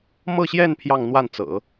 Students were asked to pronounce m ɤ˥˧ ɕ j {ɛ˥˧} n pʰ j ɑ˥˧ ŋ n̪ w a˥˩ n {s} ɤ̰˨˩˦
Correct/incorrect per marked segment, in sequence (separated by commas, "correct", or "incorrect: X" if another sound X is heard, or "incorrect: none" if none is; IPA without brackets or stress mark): correct, incorrect: t͡s